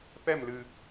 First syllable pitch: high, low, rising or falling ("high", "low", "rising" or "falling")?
falling